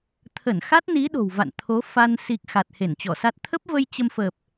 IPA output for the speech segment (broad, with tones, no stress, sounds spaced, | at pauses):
t̪ʰ ə˧˩ n x a˦˥ t̚ n i˨˦ ɗ o̤˨˩ w v a̰˧˨ n t̪ʰ o˨˦ f a˧ n s i˨˩ k̚ x a˨˩ t̚ h e˧˩ n t͡ɕ ɔ˧˩ s a˦˥ t̚ t̪ʰ ə˦˥ p̚ v ə˧ j t͡ɕ ə˧ m f əː˨˩ p̚